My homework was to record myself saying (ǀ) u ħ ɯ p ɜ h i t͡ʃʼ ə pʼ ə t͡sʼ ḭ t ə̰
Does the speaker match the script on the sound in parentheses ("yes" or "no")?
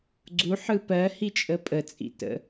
no